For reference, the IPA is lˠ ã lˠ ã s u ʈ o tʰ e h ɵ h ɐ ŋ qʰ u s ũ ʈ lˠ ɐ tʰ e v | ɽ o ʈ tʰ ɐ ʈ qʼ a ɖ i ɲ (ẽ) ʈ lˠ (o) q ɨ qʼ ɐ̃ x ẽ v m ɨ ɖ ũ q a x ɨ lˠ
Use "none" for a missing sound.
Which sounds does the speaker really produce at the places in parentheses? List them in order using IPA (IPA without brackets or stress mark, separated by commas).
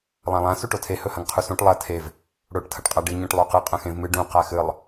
ẽ, o